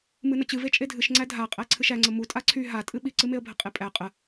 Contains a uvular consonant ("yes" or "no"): yes